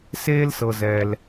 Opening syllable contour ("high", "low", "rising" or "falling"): high